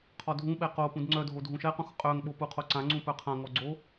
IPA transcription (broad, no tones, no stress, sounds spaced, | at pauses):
qʰ ɔ dʱ ũ ɓ ɛ q o p ũ d ŋ͡ǀ œ dʱ o dʱ ũ ʃ ɛ q ũ x qʼ œ ŋ ɓ o p u qʰ o ǀ ã ŋ͡ǀ ũ p œ qʰ ã ŋ ɔ ɡ͡ǀ o